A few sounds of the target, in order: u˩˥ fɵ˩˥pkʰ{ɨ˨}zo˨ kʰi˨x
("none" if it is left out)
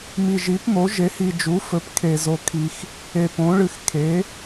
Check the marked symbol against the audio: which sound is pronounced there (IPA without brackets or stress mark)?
e˨